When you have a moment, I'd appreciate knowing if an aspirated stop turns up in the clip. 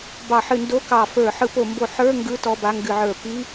no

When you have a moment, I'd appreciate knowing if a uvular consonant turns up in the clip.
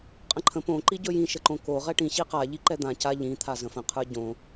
yes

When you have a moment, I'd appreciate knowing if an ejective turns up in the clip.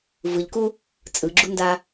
yes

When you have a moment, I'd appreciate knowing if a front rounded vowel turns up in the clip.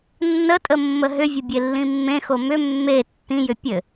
yes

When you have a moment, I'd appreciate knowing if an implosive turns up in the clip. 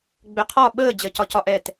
yes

